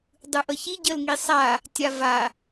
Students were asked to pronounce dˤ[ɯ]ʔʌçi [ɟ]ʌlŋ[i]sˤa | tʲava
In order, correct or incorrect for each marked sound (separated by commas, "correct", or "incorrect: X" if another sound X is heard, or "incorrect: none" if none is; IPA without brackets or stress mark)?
correct, correct, correct